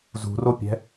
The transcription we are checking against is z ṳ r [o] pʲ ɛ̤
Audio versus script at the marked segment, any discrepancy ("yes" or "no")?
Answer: no